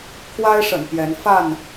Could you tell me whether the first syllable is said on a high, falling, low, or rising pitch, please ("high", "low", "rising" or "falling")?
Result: high